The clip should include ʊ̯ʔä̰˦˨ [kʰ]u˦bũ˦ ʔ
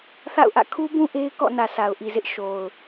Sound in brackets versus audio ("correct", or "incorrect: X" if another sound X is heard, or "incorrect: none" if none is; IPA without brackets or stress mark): correct